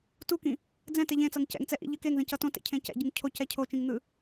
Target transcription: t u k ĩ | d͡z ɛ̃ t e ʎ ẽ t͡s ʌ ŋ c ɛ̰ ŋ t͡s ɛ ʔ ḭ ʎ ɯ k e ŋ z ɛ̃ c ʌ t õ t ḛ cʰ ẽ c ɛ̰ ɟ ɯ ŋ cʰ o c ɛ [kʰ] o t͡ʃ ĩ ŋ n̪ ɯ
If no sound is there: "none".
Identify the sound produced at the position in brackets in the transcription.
cʰ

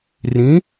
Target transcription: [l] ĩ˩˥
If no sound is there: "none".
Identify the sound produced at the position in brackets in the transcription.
r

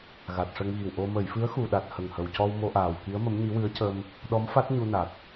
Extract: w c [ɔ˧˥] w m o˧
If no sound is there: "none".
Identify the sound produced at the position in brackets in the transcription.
ɔ˧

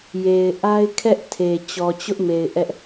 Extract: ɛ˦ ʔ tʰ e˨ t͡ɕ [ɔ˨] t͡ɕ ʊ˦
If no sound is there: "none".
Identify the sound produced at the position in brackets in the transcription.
ɔ˨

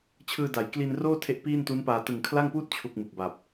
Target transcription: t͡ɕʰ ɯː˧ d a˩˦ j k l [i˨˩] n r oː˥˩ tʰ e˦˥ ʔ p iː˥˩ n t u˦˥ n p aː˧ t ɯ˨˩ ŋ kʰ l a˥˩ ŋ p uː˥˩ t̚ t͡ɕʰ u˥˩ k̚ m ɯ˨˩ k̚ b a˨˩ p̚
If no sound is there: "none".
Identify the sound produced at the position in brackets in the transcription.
i˧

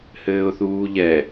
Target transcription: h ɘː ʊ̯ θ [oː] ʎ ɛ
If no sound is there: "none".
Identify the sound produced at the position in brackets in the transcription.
uː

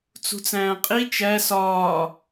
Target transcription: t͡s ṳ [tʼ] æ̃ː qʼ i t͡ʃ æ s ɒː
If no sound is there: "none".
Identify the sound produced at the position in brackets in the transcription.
t͡s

